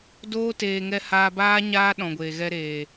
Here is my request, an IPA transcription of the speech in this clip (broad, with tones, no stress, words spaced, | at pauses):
doː˧teː˨ ŋɛ˧haː˧baː˦ ɲaː˦ ɗɔ̃˨ɡʷeː˨ɣɛ˧ ɾeː˨